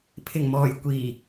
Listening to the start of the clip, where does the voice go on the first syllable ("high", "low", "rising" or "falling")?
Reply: low